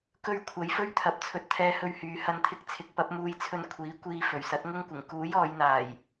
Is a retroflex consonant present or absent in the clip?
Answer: absent